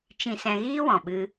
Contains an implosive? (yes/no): yes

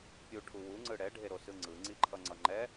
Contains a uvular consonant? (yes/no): no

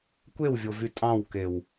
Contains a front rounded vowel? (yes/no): yes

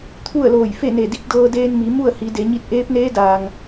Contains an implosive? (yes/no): no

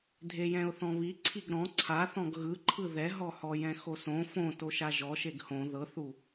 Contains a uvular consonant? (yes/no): no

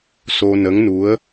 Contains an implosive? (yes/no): no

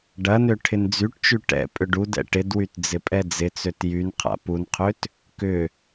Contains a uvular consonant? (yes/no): yes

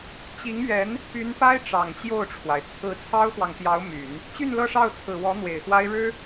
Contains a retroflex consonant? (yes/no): yes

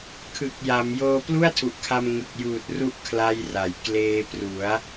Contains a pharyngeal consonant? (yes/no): no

